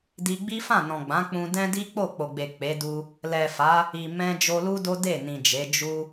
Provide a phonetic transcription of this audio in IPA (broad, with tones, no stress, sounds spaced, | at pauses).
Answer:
d i˧ ɡ͡b i˦ f ã˦˨ n ɔ̃˨ ɡ͡b ã˨˦ k͡p ũ˧ d ɛ̃˦ d i˦ k͡p o˦˨ k͡p o˨ ɡ͡b e˨ k͡p e˨˦ d u˦ | l ɛ˨ f a˨˦ | i˨ m ɛ̃˧ d͡ʒ o˧ l u˦ d o˦ d e˦˨ n ĩ˨ d͡ʒ e˨˦ d͡ʒ u˦